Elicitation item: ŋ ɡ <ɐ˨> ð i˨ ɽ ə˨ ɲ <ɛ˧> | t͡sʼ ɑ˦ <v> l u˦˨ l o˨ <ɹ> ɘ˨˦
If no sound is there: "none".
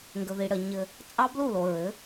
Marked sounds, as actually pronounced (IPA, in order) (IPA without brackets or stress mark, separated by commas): ə˨, ɘ˧, b, ɹ